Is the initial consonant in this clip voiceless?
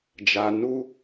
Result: no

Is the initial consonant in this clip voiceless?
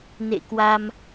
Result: no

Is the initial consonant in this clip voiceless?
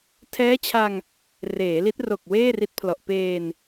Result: yes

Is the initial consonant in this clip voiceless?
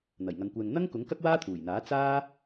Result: no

